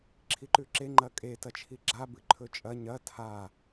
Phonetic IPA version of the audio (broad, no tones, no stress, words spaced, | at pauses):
ǁʰiǃʉǁe ŋ͡ǃɐkʼe tɐt͡ʃʰiɡ͡ǁa bɨǃʰɵt͡ʃʼɐ ɲɐ tʰa